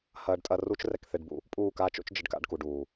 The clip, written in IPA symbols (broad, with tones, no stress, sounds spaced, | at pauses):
h ɐː˧ ɖ tʼ ɐ˧ r u˦ t͡ʃ r ɛ˧ k θ e˧ ɖ b ṵ˧ | pʼ uː˦˨ k aː˦ t͡ʃ o̰˦ t͡ʃ d͡ʒ ɨ˧ ɖ k a̰˧ ɖ k u˨ ɖ uː˨